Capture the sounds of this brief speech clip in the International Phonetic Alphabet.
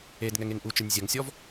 e d ŋ ɛ ŋ e ŋ ʔ u t͡ʃ ɨ nʲ zʲ ɐ ŋ sʲ ɔ v

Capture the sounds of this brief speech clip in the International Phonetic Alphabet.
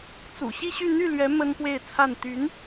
t͡s ṵ˨˩ ɕ i˥˧ ɕ y˥˧ n̪ y˥˩ l ɥ ɛ˧˥ m ə˥ n p w e˥˧ ɪ̯ t͡sʰ a˥˩ n t̪ y˧˥ n

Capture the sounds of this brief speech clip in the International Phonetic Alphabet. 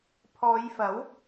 pʰ ɔː˨˧ j f ɐ˨˥ w

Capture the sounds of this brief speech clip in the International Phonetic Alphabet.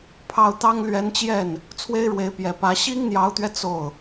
pʰ ɑ˥˩ ʊ̯ t̪ ɑ˥ ŋ l ɥ ɛ˧˥ n t͡ɕ j ɛ˥˩ n | t͡sʰ w e˥ ɪ̯ ɻ w e˧˥ ɪ̯ p j ɛ˨˩ p ä˧˥ ɕ i˥ ŋ n̪ j ɑ˧˥ ʊ̯ t̪ ɥ ɛ˧ t͡s o˥˩ ʊ̯

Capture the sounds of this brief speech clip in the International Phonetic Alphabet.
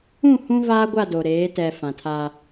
ũ˦˨ h ũ˦ v aː˦ ɡʷ a˦˨ d o˨ ɾ eː˨˦ t ɛ˨ f ã˨ tʰ aː˦

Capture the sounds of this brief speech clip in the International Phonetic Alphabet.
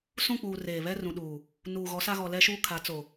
s ũ˦˨ k͡p uː˨ r eː˨ β ɛ˦ r ũ˨ ɗ uː˨ | n uː˨ ɣ ɔ˨˦ s a˦ ɣ ɔ˨ l ɛ˦ ʃ uː˦ kʰ a˨˦ t͡s o˨

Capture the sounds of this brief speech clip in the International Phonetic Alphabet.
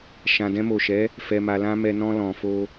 ʃ ã˨ d ɛ̃˧ m o˨ ʃ ɛ˨˦ | f ɛ˨ m a˨ l ã˧ m ɛ˨ n ɔ̃˧ l ɔ̃˨ f o˧

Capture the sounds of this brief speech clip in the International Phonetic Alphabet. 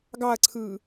ɡ ɑ ɐ̯ ǀʰ ɯː

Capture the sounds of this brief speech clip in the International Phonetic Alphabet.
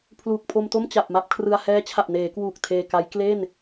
pʰ l uː˨˩ k̚ pʰ o˧ m t o˥˩ m t͡ɕ a˨˩ p̚ m a˥˩ p̚ kʰ r ɯ˧ a̯ h ɛː˦˥ t͡ɕʰ a˨˩ p̚ n eː˩˦ k w uː˨˩ k̚ tʰ eː˧ k a˦˥ j k l e˥˩ n

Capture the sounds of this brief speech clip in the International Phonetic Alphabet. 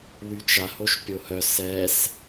w y t͡ʃ a h o ʃ pʲ o h œ s ɛ s

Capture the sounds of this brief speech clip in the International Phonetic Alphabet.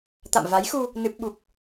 t̪ a̰˧˨ m v a˨˦ j x u˧ | n ɨ˦˥ p̚ ɓ u˦˥ k̚

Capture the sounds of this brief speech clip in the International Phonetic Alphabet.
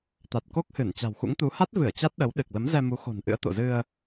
t̪ a˨˩ t̚ k o˦˥ k̚ h ɨ˧˩ n t͡ɕ a̤˨˩ w x ṵ˧˥ ŋ t̪ u˨˦ h a˦˥ t̚ v ɨ˧˩ ə̯ t͡ɕ a˦˥ t̚ ɗ ə˨˦ w ɗ ɨ˨˩ k̚ l ə˨˦ m z ɛ˧ m u˨˦ x o̤˨˩ n ʔ ɨ̰˧˥ ə̯ t̪ o̰˧˨ z ɨ˧ ə̯

